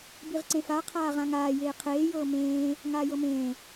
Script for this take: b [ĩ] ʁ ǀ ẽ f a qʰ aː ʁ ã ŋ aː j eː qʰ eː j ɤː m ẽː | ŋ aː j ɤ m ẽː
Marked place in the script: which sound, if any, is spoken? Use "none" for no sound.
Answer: i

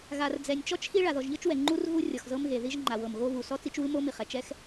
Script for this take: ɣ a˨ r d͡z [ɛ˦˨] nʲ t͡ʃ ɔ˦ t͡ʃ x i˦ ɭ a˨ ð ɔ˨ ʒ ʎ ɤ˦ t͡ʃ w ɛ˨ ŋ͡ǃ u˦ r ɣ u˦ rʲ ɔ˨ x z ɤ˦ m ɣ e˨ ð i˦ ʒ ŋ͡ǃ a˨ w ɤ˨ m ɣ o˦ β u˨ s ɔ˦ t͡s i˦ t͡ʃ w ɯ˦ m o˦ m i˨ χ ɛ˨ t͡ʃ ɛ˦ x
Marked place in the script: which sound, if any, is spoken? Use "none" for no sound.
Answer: ɛ˨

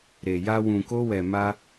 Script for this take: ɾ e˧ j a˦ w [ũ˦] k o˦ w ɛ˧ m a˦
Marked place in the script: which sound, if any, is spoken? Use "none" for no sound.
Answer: ũ˧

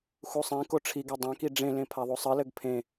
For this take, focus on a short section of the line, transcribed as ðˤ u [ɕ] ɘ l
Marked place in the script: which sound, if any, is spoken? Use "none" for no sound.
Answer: sˤ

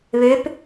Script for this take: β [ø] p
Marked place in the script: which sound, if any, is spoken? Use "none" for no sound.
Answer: ø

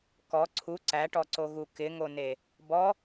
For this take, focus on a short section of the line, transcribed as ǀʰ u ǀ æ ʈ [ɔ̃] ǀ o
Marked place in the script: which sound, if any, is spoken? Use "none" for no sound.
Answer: ɔ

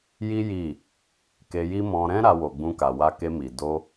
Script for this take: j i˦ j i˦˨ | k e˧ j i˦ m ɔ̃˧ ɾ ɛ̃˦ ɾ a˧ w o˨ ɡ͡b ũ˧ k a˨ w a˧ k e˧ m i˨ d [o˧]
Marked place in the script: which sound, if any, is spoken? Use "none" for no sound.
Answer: o˧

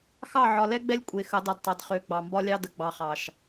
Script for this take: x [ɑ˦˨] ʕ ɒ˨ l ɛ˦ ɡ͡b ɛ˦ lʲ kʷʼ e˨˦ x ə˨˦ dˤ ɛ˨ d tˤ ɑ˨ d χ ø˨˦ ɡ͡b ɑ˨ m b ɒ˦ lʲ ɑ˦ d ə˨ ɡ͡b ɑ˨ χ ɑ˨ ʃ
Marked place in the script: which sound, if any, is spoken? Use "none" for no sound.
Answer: ɑ˦˨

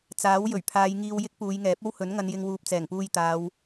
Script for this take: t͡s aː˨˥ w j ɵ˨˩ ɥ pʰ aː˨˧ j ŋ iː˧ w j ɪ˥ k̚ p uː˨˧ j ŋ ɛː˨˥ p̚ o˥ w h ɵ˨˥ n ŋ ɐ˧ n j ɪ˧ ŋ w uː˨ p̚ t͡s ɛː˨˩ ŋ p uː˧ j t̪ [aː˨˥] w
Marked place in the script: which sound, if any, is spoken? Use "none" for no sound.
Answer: aː˨˧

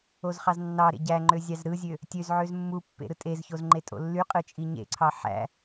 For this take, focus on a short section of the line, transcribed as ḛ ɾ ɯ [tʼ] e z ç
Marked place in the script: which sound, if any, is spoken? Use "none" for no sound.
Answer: tʼ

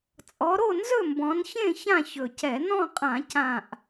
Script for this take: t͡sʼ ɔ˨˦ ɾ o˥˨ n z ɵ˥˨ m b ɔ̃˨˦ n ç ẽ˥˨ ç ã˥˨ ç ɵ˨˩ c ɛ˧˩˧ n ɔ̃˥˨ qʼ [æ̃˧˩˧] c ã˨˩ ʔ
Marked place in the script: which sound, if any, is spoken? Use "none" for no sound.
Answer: ã˧˩˧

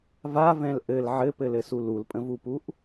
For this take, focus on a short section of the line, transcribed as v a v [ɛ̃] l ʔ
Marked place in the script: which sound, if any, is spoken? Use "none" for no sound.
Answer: ɛ̃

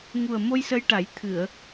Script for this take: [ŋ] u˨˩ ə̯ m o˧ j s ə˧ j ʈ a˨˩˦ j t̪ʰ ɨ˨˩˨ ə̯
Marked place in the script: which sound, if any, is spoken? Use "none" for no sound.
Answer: ŋ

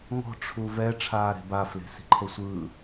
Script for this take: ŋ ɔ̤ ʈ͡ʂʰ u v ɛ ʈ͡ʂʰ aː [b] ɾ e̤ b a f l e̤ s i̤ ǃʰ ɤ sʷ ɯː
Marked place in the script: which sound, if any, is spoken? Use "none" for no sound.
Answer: none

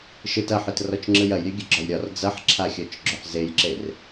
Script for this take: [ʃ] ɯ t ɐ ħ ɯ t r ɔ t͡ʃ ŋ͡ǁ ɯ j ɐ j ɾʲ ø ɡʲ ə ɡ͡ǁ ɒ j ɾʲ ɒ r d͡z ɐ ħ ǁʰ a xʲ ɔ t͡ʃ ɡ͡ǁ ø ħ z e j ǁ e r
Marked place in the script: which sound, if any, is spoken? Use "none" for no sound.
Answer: ʃ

